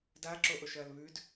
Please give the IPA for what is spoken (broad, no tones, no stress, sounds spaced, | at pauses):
d a ǁ o ʔ o ʃ ɐː l β ʉ d